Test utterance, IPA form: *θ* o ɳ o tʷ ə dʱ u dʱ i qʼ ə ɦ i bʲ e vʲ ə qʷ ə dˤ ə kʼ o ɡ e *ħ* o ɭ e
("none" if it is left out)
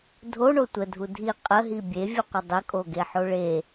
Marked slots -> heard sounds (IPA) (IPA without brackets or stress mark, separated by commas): dʱ, ħ